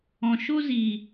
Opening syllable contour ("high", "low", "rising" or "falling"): low